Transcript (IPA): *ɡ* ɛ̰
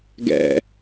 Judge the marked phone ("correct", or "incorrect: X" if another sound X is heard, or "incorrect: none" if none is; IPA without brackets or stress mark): correct